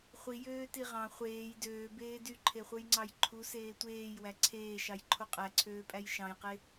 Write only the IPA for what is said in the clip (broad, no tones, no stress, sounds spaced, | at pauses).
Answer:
χʷ i j øː t i ʁ ɑ̃ χʷ eː j d øː b eː d y ǃʰ e χʷ ɯ j ŋ͡ǀ ɑ j ǃʰ u s eː tʷ eː j w æ ǀʰ eː ʃ ɑ j ǃʰ o qʼ æ ǀʰ øː pʼ æ j ʃ ɑ̃ j q e